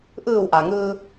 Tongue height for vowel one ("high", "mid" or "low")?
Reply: high